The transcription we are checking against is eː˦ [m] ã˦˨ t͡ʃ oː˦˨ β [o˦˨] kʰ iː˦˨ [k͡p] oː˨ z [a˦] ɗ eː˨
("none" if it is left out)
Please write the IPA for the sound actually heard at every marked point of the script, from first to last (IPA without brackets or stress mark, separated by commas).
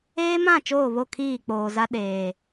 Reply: m, o˦˨, k͡p, a˦